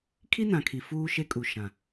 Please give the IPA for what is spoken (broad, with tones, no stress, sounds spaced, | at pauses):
kʰ i˦ n ã˨ kʰ i˨ f uː˦ ʃ e˦ kʼ u˨ ʃ ã˨